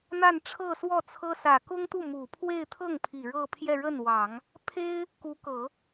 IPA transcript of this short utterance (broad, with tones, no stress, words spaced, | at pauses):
n̪a˥˧nʈ͡ʂʰɤ˥˧swɔ˥˩t͡sʰɤ˥ sä˨˩kʊ˥ŋt̪u˥˩ mu˨˩pʰwe˥˧ɪ̯ t̪ʰɤ˥˩ŋ pʰi˨˩ ɻɤ˥˧pʰjɛ˥˧ɻə˥˩nwɑ˨˩˦ŋ | pʰe˥ɪ̯ | ku˧˥kɤ˨˩˦